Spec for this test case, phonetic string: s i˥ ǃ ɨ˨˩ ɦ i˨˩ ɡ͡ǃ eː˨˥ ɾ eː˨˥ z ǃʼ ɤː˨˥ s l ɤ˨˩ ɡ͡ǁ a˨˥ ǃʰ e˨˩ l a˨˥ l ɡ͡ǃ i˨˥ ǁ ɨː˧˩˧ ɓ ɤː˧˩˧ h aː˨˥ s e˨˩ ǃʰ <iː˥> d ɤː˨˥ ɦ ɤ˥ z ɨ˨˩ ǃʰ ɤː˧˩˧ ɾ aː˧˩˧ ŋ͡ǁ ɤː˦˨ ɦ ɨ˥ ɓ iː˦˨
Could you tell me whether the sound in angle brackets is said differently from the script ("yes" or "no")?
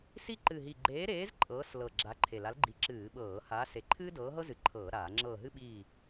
yes